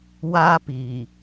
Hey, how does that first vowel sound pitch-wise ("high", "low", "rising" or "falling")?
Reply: high